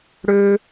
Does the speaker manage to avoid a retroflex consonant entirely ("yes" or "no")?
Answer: no